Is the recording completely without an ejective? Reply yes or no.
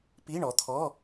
yes